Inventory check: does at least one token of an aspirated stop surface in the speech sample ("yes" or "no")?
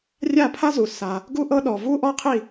yes